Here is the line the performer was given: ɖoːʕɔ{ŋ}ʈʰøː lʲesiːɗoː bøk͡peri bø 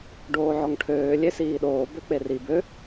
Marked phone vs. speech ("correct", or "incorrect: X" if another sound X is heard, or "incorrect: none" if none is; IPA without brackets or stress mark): correct